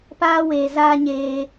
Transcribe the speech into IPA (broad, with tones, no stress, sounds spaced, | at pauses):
p aː˧ w e˨ z aː˧ ɲ eː˧